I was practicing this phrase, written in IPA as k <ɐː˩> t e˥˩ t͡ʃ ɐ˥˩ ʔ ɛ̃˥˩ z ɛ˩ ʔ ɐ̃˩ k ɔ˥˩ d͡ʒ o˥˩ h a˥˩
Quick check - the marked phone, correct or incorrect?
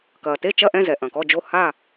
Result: correct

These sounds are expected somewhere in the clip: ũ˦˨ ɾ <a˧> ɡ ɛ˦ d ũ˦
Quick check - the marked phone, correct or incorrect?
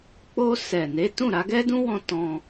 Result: correct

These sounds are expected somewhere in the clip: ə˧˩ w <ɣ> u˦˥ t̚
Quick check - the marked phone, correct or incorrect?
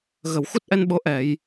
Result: incorrect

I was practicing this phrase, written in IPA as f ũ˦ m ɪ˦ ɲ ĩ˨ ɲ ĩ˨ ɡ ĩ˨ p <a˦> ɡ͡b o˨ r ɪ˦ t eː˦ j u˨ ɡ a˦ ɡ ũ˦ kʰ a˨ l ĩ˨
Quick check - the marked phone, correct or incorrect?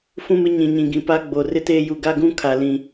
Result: correct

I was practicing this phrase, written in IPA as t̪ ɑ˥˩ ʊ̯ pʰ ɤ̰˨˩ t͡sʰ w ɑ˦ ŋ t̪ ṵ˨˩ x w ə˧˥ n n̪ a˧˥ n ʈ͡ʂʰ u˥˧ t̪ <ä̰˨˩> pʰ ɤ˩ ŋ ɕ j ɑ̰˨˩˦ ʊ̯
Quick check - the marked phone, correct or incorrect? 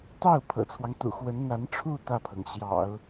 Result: incorrect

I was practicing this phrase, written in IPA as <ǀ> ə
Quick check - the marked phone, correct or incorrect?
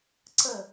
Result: correct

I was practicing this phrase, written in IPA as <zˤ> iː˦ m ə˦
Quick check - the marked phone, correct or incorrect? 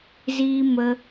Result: incorrect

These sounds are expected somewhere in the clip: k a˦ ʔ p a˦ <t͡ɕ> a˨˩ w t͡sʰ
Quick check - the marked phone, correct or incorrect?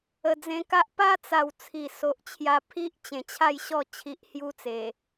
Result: incorrect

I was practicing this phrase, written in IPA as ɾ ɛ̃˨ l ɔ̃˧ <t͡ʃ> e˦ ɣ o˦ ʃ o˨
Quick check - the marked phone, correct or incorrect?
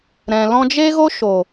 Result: incorrect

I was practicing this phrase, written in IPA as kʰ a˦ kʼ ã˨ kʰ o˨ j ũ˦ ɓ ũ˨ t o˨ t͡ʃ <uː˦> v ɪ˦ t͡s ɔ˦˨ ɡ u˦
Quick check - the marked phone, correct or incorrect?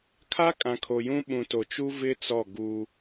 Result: incorrect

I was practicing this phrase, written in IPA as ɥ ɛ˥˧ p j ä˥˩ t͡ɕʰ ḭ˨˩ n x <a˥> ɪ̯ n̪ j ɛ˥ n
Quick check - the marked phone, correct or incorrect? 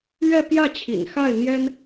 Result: incorrect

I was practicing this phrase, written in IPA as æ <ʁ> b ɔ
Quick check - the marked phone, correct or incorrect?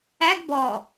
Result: incorrect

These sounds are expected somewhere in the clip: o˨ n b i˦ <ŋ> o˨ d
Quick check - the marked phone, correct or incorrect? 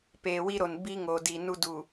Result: correct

